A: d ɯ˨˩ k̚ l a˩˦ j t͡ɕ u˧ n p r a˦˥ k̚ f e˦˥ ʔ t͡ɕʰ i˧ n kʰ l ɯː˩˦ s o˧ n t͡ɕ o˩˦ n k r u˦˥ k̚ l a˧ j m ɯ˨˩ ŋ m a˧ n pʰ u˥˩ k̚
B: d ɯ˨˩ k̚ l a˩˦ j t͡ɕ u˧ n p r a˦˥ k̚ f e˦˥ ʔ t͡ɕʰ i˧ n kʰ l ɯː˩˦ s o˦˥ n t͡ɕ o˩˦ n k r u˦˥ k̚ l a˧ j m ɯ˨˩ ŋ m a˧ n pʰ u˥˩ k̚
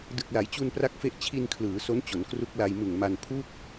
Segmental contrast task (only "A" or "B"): B